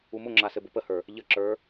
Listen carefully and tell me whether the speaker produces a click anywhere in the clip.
yes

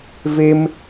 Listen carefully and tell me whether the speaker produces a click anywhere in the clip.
no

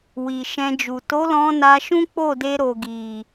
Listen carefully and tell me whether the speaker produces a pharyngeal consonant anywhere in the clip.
no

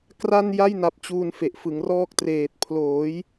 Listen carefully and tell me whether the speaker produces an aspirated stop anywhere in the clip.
yes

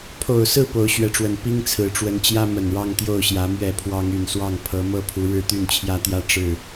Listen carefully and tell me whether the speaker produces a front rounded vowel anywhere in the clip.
yes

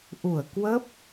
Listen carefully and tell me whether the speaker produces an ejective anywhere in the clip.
no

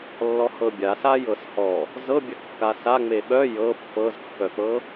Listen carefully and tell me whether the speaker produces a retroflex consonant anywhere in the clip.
no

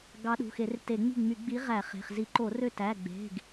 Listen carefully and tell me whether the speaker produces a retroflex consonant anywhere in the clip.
no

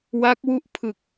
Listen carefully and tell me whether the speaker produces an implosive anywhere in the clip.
no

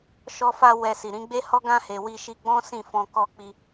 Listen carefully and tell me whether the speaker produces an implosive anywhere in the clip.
no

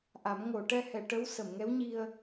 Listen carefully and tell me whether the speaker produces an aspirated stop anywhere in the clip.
no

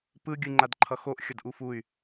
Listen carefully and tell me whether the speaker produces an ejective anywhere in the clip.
no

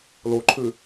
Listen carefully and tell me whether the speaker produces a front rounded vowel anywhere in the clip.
no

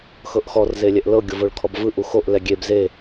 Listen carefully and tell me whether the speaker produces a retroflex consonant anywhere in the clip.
yes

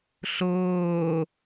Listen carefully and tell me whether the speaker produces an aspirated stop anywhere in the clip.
no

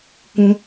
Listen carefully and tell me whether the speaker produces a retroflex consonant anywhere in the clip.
no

